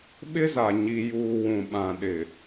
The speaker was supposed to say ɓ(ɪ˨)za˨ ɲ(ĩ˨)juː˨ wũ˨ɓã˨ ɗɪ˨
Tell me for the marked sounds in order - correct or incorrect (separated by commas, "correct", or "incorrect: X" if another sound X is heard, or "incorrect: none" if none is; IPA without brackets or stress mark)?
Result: incorrect: ɪ˦, incorrect: i˨